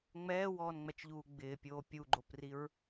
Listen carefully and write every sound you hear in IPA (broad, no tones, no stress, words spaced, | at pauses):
ŋ͡mɛːwɔːnŋ͡mɛt͡ʃʎuː ɡ͡bɪːpʲoː pʲuɡ͡ǃopriɹ